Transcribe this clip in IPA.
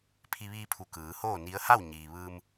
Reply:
pʰi˧ʋiː˧pʰu˩˧ kɯː˩˧hoː˥˨ni˧˥ə̯ ha˥˨wɲiː˩ʋɯː˧m

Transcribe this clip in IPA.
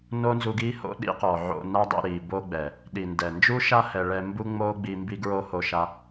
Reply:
no˦nzu˧ɡiː˦ho̰˦ ɗḭ˦qɔ˨ʕo̰˧na˦ dˤḭ˧ɾiː˨ bo˦ɡ͡bɛ˨ | ɗi˨ndɛ˨ nd͡ʒu˦ʃa˦ hɛ˧ ɭɛ˧ mbu˦ŋ͡moː˦ɡ͡bi˧ mbi˦ɡɹo˦ho˧ʃa˧

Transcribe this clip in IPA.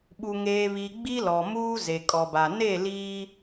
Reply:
ɓu˨ ŋeː˨βi˨ ɡ͡bi˦lɔ˨ muː˦ze˨kʼɔ˨ba˨ ne˦˨ liː˦

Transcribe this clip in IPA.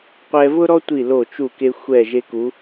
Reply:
qʷɛ˧vʊ˥ɾɔ˥tʷi˧˩ lo˧˩t͡ʃu˧˩ke˧ xʷɛ˧˩ ʒe˧ku˩˧

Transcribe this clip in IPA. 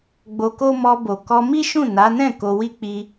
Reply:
ɡ͡bo˧ko˦ mɔ˧bo˨ kɔ˧mi˦ʃũ˦˨ na˨˦nɛ̃˦˨ ko˧wi˦ k͡pi˧

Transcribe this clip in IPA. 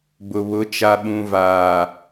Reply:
bʊ˨βʊ˨˦ t͡ʃa˨ɓũ˨vaː˨

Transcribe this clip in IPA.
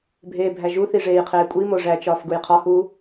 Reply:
bʱeːbʱæʒuθi ʐeːjqʰeːkʷʼimo ʐæt͡ʃɒːf ɡujqʰɒhuː

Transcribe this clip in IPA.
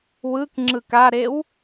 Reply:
wɯk ŋ͡ǁɯkaɾew

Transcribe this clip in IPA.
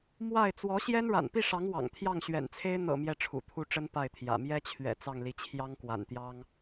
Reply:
mwa˥˩ɪ̯ t͡swɔ˧˥ɕjɛ˥n ɻa̰˨˩npi˥˩ʂɑ˧˥ŋ wɑ̰˨˩ŋ t̪ʰjɑ˥˩ŋɕɥɛ̰˨˩nt͡sʰe˥ɪ̯ n̪ɤ̰˨˩ mjɛ˥˩ʈ͡ʂʰṵ˨˩t̪ʰu˥˩ʈ͡ʂə˥n pa˥˩ɪ̯t̪ʰjä̰˨˩ mjɛ˥t͡ɕʰɥɛ̰˨˩ t͡sɑ˥˩ŋli˧˥ t͡ɕʰjɑ˥ŋkwa̰˨˩nt̪jɑ˥ŋ

